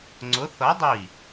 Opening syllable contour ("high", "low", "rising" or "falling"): rising